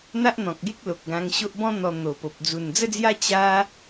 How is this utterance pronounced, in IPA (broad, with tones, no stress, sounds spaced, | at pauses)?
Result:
n̪ a˦ ʔ n̪ ɔ̃˨ k̚ ɡ e˦ k̚ l o˨ k̚ ɡ ã˧ ŋ ɕ o˦ ʔ b ɔ̃˦ n̪ ɔ˧ n̪ o˨˩ p o˨ p̚ d͡z u˨˩ n d͡z ə˦ d͡z j a˦ t͡ɕ a˦